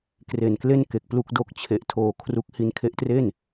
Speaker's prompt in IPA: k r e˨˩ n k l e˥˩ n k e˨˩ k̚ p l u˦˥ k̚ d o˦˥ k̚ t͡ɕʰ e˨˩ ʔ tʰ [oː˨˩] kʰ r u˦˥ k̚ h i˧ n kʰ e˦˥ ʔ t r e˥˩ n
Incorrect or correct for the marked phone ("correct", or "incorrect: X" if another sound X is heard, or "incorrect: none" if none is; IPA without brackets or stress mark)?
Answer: incorrect: oː˧